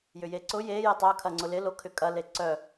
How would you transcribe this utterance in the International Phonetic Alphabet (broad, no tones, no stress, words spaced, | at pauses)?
jʏjeǀʊ je jətˤœ kʰɐŋ͡ǀʊlɪ lokʰʏkʼɐ leǀœ